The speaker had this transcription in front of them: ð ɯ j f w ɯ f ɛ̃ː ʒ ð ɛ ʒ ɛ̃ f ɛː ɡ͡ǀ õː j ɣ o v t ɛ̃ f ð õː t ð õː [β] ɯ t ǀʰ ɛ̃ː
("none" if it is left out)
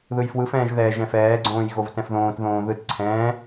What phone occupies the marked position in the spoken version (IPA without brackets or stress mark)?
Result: ð